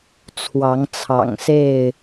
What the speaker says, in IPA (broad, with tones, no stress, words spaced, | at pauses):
t͡sʰwɑ˨˦ŋt͡sʰɑ̰˨˩ŋse˥˨ɪ̯